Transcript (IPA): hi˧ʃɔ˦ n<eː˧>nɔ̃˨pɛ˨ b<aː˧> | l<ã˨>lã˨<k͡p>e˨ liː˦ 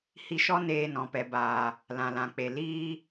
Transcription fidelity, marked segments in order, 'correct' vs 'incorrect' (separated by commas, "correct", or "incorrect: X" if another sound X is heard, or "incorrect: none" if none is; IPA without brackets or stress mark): correct, incorrect: aː˨, correct, correct